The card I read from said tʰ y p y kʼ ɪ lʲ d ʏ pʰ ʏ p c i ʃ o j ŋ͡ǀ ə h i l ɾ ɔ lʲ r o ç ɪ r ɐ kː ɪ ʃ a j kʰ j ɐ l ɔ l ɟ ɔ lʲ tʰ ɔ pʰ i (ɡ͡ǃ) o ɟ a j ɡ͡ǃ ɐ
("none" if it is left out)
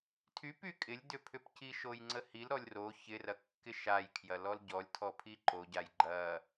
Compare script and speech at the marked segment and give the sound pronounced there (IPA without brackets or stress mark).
ǃ